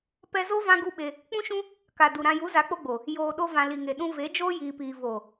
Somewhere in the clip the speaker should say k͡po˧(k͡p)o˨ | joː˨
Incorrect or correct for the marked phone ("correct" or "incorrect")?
incorrect